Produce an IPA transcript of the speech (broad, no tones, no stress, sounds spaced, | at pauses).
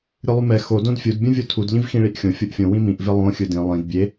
ɾʲ ɯ lˠ u m ɛ x o d õ d fʲ u d bʲ ũ vʲ o tʰ u d ʎ ĩ v x ĩ ɭ i ʔ xʲ õ fʲ o ʔ fʲ õ w ĩ m ĩ ʔ v e lˠ õ xʲ ɯ d ĩ lˠ ĩ d bʲ e